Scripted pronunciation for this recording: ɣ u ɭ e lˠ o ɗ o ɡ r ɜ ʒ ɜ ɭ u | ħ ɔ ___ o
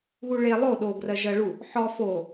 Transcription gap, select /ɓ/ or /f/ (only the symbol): f